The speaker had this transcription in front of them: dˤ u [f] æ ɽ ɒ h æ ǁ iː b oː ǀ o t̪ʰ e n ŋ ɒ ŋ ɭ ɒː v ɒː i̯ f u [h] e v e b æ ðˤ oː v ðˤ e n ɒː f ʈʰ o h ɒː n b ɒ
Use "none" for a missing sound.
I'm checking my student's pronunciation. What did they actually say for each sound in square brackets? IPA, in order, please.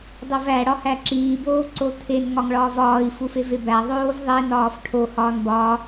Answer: v, f

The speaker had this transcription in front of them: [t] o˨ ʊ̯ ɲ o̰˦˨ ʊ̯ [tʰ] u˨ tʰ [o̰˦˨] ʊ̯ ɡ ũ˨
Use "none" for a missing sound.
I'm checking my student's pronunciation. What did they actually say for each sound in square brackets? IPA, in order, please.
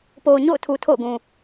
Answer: p, tʰ, o̰˦˨

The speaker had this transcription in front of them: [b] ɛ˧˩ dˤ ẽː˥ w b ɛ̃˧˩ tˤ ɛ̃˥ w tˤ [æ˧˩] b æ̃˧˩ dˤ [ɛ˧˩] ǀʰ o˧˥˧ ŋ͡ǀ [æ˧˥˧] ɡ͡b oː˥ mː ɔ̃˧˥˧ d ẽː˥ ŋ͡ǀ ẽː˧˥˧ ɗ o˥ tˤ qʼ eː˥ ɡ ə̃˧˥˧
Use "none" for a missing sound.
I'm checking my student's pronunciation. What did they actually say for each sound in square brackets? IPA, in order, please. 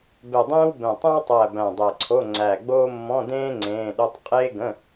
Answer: b, æ˧˩, ɛ˧˩, æ˧˩

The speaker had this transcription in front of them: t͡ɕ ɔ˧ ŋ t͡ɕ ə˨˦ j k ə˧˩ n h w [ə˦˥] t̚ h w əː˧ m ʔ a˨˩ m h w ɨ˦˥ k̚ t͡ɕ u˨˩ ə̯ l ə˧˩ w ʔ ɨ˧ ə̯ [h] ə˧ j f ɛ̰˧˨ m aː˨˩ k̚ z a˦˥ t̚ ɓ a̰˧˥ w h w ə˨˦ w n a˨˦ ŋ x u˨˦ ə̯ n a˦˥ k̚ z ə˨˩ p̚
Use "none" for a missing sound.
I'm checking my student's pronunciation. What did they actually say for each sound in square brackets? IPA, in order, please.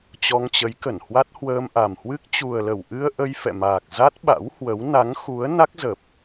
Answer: a˦˥, ʔ

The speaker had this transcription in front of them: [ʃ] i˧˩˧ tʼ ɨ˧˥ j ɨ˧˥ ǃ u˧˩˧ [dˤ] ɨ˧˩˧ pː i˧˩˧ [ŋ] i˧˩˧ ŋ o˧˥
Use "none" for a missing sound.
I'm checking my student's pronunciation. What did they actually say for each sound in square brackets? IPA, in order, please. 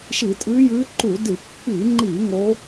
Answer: ʃ, d, ŋ͡ǃ

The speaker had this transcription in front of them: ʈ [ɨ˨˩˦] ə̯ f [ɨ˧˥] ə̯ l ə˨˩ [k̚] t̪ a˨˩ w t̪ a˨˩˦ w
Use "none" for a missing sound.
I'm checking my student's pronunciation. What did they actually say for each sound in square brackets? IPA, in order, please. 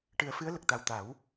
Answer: ɨ˨˩˦, ɨ˧˥, k̚

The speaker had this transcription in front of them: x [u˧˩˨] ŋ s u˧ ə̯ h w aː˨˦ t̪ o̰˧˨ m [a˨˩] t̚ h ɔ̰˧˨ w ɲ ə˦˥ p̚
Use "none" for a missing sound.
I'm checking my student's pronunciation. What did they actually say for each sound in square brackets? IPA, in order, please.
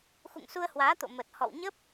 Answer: ṵ˧˨, ə˨˩

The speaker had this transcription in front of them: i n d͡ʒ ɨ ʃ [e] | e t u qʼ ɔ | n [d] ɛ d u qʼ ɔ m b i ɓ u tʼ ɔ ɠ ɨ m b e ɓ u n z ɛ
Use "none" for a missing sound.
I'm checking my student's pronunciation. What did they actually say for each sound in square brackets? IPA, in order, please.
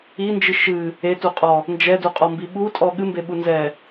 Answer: ɨ, d͡ʒ

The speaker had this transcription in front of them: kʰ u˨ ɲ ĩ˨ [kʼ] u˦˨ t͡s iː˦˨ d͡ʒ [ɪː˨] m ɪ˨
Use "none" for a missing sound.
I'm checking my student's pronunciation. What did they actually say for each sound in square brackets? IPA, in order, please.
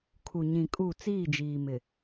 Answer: kʼ, iː˨

